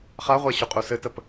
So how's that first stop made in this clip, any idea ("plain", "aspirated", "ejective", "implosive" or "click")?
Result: ejective